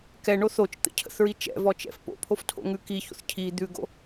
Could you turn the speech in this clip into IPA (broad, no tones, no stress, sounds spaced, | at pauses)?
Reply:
k ɛ ɳ o θ o t͡ʃ t̪ ə̰ cʰ ə̰ θ ɹ i t͡ʃ ɛ̰ v ɔ t͡ʃ ɛ̰ f p o̰ pʰ o f tʰ o̰ ŋ ʉ k i ç o̰ θ cʰ i d̪ ʉ ɡ o̰